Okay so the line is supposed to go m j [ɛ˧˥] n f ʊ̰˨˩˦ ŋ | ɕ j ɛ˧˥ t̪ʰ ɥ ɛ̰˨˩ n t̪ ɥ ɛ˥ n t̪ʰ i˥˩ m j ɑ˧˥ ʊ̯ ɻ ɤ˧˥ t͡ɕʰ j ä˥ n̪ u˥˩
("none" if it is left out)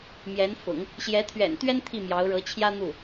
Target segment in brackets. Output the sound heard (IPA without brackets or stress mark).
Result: ɛ˧˥